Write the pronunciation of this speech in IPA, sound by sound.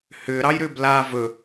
hʏːɾɑjɾʏːb la vɵ

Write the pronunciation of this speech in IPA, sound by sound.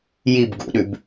jib ɡṵɗʉb

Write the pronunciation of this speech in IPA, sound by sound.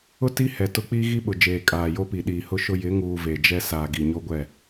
ʊ˦ ti˦hɛ˨tʊ˦ k͡piː˦ɣi˦ɓʊ˨d͡ʒeː˨ kʼaː˨jo˦pi˨ ɗiː˨hʊ˦ʃʊ˦ jɪ˨˦ŋuː˨ ve˨d͡ʒɛ˦ saː˨ɡi˨ɲo˦ɡʷɛ˦˨

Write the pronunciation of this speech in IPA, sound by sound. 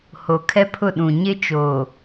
ho˨kʰɛ˦pʰʊ˦˨ɗũ˨ ɲɪ˦t͡ʃoː˨

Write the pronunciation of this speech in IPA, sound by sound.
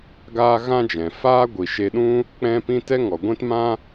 ɡaː˦ɣã˦d͡ʒɛ̃˨ faː˦ ɡʷi˨ʃe˧ɗũ˦ | k͡pɛ̃˦pĩ˦ tɛ˦ŋɔ˨ɡʷɛ̃˦tmã˦

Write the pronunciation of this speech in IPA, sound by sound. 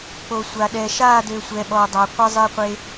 k͡po˨sʷa˨ ɗɛ˨ ʃa˦˨dø˨ sʷɛ˨ɓɔ˨dˤa˨ qʷə˦zˤɛ˦qʷe˦

